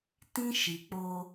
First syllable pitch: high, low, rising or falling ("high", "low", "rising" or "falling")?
high